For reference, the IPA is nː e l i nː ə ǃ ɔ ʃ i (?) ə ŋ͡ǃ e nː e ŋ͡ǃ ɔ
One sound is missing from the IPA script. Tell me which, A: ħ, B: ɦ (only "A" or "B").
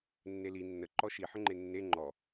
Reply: A